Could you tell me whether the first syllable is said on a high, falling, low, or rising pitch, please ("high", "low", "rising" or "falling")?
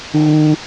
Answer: high